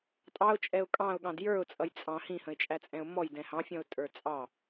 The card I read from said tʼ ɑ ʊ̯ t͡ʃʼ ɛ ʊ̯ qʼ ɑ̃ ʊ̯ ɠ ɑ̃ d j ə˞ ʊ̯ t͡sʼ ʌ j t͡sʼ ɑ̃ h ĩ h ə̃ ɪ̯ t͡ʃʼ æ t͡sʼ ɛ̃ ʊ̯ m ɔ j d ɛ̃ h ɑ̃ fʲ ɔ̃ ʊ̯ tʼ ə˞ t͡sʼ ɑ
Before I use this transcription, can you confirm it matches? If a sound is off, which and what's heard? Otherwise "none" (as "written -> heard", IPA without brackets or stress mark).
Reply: qʼ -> kʼ